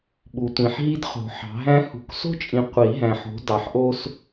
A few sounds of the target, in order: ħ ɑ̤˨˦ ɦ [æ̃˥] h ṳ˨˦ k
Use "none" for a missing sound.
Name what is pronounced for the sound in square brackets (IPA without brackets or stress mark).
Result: æ̃˥